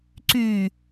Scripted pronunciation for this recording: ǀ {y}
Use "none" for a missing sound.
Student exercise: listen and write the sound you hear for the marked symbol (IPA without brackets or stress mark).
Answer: y